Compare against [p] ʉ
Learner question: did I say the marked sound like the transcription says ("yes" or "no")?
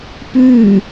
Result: yes